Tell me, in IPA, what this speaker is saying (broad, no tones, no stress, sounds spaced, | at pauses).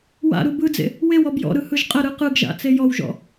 w a̰ ɾ u b ɯ d͡z ḛ | w e w ɔ b j ɔ̰ ɾ ɯ h ɯ ʒ qʼ ə ɾ ɯ q ɯ ɡ ʒ a̰ t͡s e j ɔ w ʒ ɔ̰